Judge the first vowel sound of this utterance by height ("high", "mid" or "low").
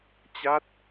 low